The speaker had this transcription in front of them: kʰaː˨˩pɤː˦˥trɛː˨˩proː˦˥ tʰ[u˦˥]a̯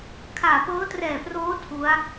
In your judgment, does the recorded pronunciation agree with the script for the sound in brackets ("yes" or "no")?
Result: yes